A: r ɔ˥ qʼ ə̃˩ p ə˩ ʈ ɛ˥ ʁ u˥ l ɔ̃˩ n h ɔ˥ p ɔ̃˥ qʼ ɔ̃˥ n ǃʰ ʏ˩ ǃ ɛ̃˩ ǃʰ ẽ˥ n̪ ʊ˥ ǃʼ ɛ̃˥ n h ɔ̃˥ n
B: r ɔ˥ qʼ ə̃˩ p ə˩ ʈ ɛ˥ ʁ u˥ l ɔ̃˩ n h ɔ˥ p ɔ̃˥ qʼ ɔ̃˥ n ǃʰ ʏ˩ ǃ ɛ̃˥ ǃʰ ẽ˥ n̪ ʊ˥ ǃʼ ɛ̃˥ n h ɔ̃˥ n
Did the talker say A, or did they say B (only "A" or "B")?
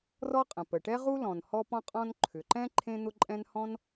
B